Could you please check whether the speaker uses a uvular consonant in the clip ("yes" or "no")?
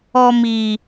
no